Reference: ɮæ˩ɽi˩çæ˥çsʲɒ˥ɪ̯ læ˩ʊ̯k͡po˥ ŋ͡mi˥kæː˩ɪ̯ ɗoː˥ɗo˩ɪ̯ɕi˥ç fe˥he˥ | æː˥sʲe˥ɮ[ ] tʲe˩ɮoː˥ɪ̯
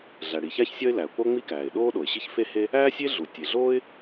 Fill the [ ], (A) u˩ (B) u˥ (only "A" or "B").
A